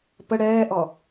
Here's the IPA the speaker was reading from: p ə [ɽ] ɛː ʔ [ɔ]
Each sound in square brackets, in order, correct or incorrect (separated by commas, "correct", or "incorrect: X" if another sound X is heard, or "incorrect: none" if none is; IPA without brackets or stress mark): correct, correct